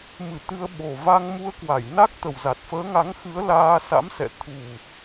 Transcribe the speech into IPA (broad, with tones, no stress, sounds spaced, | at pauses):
m ɨ˧˩ t̪ ɨ˧ ə̯ ɓ o˨˩ v a˧ ŋ m u˧ ə̯ k w a˧˩ j n a˦˥ k̚ t̪ ə˨˩ w z a˨˩ t̚ f əː˨˦ ŋ a˨˦ ŋ x ɨ˨˦ ə̯ l aː˧ s a̰˧˥ m s ɛ̰˧˨ t̪ʰ u˨˩